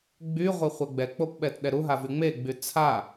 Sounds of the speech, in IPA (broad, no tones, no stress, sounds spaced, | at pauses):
ɡ͡b y ʁʷ e χʷ ɛ ɡ͡b ɛ k͡p o p ɓ ɛ t ɗ ɛ ɾ u ɦ a v y ŋ͡m e ɡ͡b y t͡sʰ a